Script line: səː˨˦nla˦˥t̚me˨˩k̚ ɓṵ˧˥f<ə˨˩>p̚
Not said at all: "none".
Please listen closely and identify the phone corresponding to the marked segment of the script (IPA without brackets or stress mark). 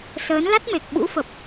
ə˨˩